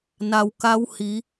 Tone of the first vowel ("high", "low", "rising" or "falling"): low